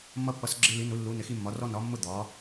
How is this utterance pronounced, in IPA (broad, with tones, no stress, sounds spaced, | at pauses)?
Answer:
mː ʌ˧ pː ʌ˩˧ s ɡ͡ǁ ɪ˧ l i˩˧ n u˩˧ lː u˩˧ n ɪ˩˧ x i˧ mː ɒ˩˧ r ɔ˧ n ɒ˩˧ mː ʊ˧ d̪ ɒ˩˧